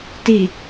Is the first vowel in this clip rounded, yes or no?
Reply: no